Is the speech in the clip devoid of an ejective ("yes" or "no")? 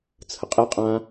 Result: no